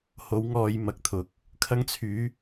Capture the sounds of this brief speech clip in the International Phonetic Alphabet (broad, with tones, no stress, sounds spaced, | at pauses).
h o˨˥ w ŋ ɔː˧ j m ɐ˧ k̚ t̪ʰ ʊ˨˥ k̚ | kʰ ɐ˥ ŋ t͡sʰ yː˨˥